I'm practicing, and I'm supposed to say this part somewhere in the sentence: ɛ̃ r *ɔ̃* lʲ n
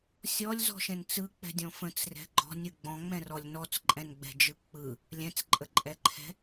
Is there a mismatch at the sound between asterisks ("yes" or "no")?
yes